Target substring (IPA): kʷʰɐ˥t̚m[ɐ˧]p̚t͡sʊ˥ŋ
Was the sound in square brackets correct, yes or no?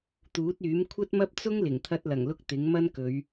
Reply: no